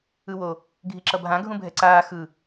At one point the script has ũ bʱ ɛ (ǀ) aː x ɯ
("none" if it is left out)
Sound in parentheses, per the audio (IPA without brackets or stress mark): ǀ